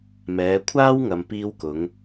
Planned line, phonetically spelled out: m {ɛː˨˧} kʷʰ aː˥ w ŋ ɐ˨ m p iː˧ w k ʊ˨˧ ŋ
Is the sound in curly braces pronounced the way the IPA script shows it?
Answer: yes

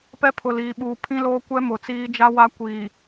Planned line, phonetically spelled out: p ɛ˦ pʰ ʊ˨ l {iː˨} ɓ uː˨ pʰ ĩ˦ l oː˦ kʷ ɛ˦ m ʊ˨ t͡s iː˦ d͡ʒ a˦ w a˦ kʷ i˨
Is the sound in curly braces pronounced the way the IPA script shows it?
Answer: yes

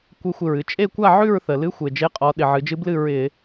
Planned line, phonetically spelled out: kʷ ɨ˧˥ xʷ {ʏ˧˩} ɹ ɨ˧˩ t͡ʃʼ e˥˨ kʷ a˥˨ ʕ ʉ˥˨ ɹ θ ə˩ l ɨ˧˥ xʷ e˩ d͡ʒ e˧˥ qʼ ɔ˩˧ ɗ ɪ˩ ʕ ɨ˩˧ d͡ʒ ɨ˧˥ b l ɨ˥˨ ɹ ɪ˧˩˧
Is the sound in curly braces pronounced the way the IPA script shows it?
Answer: no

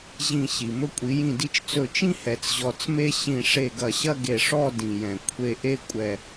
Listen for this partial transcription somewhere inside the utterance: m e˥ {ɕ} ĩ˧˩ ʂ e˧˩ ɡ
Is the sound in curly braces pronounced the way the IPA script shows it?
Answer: yes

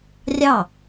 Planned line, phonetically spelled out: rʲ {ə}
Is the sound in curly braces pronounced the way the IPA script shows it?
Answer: no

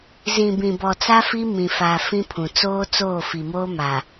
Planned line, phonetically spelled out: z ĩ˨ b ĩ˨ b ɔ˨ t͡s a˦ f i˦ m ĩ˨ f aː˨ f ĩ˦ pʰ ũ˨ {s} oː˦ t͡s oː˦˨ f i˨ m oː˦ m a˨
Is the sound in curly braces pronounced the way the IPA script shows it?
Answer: no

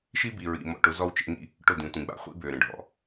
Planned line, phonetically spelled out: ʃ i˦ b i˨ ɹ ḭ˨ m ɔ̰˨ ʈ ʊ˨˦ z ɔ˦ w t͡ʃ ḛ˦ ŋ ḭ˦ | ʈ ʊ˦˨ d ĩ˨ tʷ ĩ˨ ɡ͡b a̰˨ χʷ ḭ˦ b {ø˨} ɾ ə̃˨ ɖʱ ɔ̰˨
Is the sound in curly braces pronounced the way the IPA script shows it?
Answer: yes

